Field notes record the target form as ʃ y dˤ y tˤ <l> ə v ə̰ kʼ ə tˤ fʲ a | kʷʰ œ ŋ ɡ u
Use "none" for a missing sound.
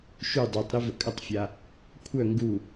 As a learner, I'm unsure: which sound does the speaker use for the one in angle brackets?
ɾ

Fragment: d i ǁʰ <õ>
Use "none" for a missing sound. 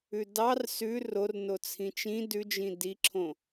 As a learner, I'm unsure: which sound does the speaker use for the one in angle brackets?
õ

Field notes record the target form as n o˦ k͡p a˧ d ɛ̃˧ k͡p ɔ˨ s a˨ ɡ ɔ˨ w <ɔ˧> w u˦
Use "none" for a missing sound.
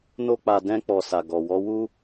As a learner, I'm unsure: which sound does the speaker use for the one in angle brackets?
ɔ˧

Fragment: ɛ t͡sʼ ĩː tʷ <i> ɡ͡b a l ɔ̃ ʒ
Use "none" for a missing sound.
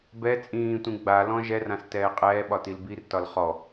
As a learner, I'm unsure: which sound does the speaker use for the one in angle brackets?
ĩ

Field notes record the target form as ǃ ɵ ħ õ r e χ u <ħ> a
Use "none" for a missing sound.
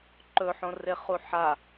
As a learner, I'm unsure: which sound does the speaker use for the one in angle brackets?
ħ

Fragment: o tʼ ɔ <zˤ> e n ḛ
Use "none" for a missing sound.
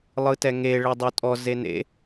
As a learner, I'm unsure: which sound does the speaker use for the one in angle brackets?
z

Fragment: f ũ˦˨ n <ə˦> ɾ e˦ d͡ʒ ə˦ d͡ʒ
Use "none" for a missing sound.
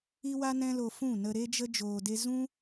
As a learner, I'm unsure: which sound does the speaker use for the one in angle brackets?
ə˧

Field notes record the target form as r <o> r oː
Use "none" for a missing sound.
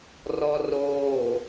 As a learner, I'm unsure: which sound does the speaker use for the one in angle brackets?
ɔ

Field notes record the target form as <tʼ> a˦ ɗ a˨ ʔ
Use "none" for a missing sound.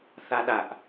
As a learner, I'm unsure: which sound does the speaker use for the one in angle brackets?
θ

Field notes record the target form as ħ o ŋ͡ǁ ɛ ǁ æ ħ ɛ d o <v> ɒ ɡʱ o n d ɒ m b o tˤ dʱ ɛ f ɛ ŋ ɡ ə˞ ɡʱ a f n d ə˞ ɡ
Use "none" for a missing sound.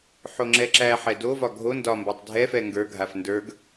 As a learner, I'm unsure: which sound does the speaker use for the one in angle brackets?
v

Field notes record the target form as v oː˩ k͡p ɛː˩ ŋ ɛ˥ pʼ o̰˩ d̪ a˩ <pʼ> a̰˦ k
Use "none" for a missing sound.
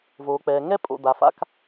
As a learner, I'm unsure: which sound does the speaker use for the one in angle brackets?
f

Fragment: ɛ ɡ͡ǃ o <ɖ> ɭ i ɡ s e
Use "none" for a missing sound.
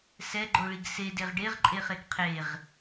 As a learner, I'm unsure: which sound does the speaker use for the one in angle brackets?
none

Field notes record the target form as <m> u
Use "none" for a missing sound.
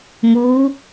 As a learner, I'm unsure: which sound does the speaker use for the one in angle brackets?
m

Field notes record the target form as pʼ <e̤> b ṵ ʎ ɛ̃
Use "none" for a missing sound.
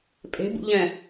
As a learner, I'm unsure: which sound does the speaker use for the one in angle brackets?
e̤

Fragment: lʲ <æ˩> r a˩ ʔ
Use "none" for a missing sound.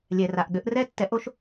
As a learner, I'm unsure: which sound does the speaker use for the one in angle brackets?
ɛ˩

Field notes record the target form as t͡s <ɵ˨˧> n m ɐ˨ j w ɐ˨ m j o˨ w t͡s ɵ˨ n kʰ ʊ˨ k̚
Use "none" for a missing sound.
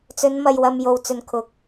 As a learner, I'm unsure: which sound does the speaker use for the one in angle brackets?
ɵ˨˧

